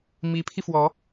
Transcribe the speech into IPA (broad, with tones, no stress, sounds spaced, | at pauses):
m i˧˥ pʰ i˧ f w ɔ˧˥